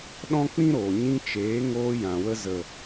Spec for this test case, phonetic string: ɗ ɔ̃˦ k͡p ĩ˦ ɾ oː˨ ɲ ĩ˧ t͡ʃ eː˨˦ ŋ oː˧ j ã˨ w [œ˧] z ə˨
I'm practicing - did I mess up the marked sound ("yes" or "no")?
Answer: yes